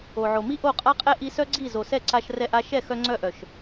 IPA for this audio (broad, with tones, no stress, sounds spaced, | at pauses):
o˨ ʕ o˨ m i˦ ʔ o˦˨ qʼ a˦ qʼ ɛ˦ ʔ i˧ s œ˦ ɡ͡ǀ i˦˨ z o˨ s ɛ˦˨ ǀ a˧ ʃ r ɛ˧ ʔ a˧ ʃ ɛ˦˨ x œ˧ ŋ͡ǀ œ˧ ʔ œ˨ ʃ